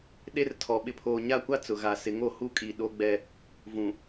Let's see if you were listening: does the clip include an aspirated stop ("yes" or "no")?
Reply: yes